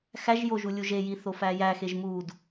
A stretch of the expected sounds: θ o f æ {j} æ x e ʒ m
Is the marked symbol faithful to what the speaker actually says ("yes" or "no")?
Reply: yes